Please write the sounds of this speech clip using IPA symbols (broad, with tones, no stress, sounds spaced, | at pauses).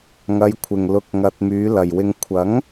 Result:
ŋ ɐ˨˧ j kʷʰ ɪ˨ ŋ l ʊ˧ k̚ ŋ ɐ˧ t̚ m yː˨˧ l ɐ˨ j w ɪ˧ ŋ kʷʰ ɐ˨˥ ŋ